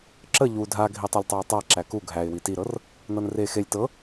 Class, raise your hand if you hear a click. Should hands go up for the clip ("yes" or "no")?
yes